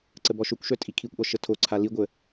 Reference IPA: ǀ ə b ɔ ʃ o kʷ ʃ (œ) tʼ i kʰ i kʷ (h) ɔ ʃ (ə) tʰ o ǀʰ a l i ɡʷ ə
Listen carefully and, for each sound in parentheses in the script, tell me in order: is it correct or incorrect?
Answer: correct, incorrect: ʔ, correct

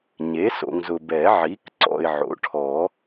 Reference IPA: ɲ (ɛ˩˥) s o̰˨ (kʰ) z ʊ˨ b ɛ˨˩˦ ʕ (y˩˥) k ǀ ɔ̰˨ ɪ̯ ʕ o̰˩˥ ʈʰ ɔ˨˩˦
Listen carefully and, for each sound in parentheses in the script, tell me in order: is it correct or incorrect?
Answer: incorrect: e˩˥, incorrect: ŋ, incorrect: i˩˥

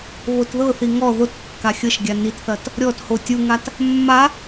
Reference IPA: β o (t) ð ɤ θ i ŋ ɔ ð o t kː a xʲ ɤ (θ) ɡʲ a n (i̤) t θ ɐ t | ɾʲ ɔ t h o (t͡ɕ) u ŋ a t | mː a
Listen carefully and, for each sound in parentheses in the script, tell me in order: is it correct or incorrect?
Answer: correct, incorrect: ʃ, incorrect: i, incorrect: tʲ

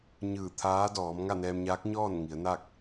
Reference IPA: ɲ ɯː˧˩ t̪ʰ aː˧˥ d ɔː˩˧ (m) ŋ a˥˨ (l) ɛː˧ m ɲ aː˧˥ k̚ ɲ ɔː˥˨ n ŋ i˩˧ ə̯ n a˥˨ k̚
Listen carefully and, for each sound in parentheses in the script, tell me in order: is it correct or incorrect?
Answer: correct, incorrect: n

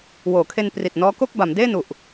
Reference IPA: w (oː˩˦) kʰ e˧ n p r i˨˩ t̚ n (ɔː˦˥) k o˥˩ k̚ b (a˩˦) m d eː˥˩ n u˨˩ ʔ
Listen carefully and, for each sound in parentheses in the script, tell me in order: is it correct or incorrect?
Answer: correct, correct, correct

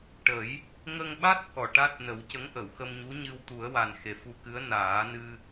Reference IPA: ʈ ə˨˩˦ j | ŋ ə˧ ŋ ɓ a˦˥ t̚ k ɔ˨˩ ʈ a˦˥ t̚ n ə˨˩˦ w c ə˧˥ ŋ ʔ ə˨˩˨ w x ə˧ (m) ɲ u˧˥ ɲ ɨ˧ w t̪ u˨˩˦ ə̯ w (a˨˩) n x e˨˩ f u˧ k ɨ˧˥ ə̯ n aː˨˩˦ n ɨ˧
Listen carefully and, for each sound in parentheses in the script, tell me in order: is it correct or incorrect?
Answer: correct, correct

